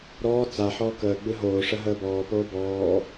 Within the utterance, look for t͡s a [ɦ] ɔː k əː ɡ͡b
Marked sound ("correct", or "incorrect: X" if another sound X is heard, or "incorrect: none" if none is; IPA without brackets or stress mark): incorrect: ħ